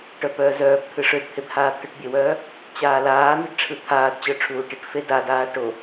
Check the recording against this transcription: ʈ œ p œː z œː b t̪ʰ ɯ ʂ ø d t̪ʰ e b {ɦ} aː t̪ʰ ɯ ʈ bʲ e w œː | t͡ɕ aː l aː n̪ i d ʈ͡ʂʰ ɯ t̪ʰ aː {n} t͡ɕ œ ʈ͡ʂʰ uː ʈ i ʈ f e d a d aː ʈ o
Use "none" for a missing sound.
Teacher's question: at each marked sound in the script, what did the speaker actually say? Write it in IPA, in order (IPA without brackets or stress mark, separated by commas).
h, d